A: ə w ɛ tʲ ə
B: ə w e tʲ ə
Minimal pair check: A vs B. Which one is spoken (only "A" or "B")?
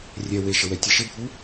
A